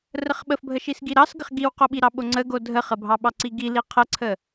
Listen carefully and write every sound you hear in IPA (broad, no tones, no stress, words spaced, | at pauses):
rəχɓəfbʱəʃis ɡiɾɑsɡəχ ɡiwqoɓiɾɑ ɓoŋ͡ǀəɡo dʱəχəbʱɑɓɑ ǀiɡi liqʰəǀʰə